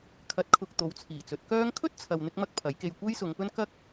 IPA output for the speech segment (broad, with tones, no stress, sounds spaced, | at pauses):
kʰ ɐ˨˥ t̚ kʰ ʊ˨ k̚ t̪ o˨˧ w t͡sʰ iː˨˩ t͡s ɵ˨˥ t̚ k œː˥ ŋ kʰ ɵ˥ t̚ t͡sʰ ɐ˨ w n̪ ɪ˧ k̚ m ɐ˥ k̚ pʰ ɐ˨˥ j k e˧ j kʷ e˥ j s ʊ˨˧ ŋ p ɵ˥ n k ɐ˥ k̚